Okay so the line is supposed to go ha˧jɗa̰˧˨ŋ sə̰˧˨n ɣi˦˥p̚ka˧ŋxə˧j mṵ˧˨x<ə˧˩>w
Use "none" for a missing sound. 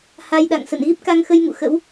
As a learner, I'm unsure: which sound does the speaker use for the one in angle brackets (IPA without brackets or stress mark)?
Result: ə̰˧˥